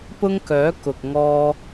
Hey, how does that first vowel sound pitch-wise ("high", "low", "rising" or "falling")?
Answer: high